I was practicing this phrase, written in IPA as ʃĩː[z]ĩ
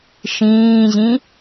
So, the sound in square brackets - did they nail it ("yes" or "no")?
no